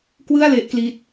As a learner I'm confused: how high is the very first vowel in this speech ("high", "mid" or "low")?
high